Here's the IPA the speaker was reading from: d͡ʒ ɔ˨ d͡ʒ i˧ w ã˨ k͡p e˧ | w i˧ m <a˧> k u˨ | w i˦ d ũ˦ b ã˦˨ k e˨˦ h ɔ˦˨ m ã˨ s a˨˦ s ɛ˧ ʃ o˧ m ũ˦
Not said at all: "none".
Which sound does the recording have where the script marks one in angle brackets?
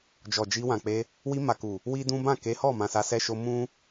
a˨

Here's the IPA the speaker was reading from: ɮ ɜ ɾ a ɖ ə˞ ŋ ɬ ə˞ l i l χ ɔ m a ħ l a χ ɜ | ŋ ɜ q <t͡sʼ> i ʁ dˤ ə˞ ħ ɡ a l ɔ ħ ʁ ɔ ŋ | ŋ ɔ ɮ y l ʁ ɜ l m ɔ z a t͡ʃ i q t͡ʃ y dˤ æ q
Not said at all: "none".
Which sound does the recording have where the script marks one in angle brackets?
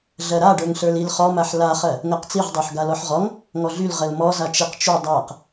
t͡s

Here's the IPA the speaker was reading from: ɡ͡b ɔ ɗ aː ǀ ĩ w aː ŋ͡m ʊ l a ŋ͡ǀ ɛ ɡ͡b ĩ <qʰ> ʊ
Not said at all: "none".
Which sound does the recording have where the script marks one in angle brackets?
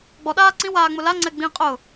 qʼ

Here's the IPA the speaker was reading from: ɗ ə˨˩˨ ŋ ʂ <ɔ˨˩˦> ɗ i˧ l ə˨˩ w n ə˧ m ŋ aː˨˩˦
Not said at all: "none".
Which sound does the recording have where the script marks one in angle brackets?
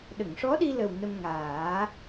ɔ˧˥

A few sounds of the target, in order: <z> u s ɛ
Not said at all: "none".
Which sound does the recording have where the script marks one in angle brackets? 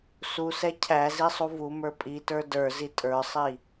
s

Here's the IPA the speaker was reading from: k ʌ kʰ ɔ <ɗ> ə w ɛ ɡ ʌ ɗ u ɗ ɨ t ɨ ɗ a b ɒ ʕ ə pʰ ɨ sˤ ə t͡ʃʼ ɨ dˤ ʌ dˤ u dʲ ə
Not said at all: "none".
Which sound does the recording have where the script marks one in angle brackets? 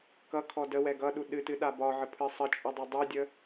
d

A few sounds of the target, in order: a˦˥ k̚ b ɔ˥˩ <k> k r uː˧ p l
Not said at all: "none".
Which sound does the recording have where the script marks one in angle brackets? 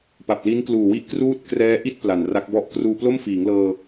ʔ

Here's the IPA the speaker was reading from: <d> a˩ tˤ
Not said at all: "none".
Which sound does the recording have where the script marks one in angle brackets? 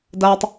d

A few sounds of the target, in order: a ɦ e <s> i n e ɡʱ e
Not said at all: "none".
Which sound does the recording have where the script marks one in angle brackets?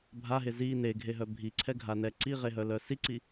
z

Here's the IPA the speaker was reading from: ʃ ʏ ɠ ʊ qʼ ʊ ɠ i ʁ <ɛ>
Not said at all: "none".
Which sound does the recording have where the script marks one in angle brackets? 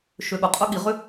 ʏ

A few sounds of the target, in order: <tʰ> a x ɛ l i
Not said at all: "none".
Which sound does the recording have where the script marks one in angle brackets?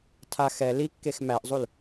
tʰ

